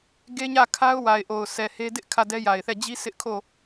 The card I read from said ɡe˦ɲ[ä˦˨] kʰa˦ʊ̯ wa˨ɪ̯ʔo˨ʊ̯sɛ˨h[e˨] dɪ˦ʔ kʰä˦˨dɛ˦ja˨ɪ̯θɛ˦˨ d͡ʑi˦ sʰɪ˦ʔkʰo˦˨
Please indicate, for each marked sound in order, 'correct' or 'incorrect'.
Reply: correct, incorrect: e˦

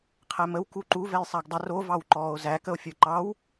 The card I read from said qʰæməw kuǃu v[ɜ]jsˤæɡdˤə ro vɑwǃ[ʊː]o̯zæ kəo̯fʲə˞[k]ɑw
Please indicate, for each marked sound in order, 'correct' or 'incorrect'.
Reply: incorrect: ɛ, incorrect: ɔː, incorrect: ǃ

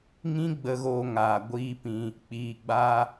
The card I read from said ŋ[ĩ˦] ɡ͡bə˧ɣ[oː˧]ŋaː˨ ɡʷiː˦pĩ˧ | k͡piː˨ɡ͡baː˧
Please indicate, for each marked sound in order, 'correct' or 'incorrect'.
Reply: correct, correct

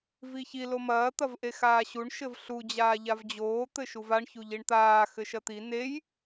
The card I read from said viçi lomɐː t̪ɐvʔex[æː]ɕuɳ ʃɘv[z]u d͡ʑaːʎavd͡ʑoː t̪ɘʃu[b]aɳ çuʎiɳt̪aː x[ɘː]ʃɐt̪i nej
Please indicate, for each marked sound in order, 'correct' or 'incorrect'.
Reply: incorrect: aː, incorrect: ɬ, incorrect: v, incorrect: ɘ

